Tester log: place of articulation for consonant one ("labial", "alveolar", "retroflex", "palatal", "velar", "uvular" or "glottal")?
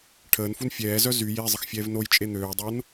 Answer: retroflex